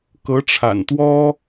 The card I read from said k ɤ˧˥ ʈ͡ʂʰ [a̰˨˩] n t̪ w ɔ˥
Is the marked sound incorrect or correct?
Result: correct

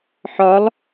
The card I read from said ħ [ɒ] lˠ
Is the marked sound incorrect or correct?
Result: correct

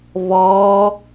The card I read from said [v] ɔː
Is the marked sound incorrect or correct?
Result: correct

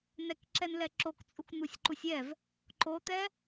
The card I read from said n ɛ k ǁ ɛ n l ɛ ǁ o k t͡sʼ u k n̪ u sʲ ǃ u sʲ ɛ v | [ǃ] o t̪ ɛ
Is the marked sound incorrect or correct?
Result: correct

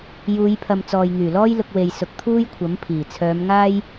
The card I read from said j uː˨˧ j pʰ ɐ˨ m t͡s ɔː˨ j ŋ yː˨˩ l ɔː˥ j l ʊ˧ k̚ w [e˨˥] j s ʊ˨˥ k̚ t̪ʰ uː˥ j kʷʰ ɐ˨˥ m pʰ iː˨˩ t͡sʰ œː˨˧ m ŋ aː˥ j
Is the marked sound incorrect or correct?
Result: incorrect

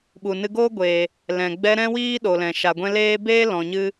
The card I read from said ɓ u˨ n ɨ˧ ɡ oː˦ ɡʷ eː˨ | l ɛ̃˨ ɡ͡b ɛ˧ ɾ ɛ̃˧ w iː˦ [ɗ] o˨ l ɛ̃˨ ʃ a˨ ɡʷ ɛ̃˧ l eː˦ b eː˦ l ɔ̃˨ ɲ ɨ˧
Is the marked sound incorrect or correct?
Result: correct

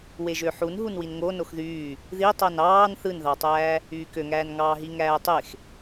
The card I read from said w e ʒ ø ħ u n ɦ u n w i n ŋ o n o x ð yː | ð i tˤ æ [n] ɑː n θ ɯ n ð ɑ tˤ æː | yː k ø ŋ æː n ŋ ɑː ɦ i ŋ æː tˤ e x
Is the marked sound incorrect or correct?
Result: correct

